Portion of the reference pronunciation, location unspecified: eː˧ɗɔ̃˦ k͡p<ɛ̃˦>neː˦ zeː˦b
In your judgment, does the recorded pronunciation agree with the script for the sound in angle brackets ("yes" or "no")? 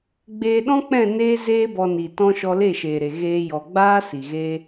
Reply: no